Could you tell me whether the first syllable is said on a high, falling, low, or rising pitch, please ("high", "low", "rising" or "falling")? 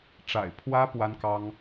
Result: low